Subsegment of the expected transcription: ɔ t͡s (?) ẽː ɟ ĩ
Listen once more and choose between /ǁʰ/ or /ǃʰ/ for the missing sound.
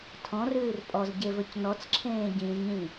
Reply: ǁʰ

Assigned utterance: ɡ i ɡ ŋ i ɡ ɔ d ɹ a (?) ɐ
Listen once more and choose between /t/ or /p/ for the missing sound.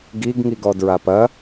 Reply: p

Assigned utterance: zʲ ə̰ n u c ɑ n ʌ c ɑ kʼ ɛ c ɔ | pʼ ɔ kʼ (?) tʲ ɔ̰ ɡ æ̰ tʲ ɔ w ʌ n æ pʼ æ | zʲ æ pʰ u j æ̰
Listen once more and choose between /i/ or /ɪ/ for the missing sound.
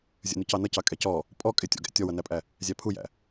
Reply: ɪ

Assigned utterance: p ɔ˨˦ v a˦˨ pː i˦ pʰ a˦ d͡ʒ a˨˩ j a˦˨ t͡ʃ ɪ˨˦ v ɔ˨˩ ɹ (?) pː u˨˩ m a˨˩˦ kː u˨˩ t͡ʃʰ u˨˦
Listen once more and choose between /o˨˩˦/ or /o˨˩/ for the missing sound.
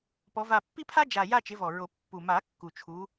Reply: o˨˩˦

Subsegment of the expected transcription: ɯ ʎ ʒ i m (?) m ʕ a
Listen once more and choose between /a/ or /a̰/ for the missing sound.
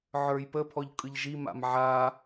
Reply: a̰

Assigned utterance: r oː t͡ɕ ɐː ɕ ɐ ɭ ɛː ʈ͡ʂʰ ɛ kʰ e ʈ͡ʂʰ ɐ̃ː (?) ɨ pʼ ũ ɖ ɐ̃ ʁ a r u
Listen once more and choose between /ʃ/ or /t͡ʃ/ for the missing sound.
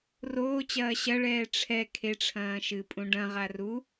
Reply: ʃ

